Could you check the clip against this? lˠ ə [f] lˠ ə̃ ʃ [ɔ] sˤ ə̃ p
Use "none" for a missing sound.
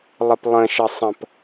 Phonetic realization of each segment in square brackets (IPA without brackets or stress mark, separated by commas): p, ə